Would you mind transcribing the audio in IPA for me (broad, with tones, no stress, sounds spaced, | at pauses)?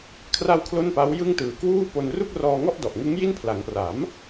kʰ r a˧ w kʰ l o˥˩ n p a˦˥ w j ɯ˥˩ ŋ t ɯː˨˩ k w uː˥˩ p o˧ n r u˥˩ k̚ r ɔː˧ ŋ ɔ˥˩ ʔ d ɔ˨˩ ʔ ŋ ɯ˦˥ ŋ j i˥˩ n pʰ l a˩˦ ŋ p r a˩˦ m